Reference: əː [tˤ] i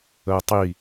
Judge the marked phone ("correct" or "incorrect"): correct